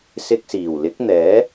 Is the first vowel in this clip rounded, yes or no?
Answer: no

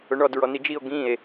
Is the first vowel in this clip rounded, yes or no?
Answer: yes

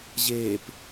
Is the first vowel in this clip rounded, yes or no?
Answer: no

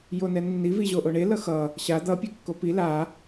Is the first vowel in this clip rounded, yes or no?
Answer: yes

